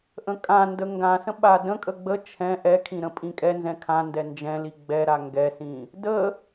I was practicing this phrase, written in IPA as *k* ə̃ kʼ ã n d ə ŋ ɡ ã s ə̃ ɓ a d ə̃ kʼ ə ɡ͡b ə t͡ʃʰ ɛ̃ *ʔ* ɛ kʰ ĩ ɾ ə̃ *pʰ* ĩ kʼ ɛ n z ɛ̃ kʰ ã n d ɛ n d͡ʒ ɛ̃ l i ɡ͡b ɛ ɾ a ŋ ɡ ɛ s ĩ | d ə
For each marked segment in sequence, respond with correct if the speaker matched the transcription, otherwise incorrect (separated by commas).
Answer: incorrect, correct, incorrect